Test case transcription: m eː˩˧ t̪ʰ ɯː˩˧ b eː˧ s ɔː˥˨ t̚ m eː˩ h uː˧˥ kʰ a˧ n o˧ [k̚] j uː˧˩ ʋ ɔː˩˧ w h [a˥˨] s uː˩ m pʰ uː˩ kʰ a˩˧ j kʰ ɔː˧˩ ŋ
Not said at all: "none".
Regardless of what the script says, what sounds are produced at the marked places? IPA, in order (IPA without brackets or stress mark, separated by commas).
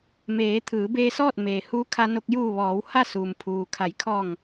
k̚, a˥˨